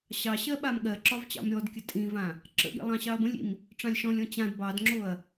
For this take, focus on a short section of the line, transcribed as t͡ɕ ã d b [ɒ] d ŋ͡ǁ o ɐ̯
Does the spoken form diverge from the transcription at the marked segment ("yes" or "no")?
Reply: yes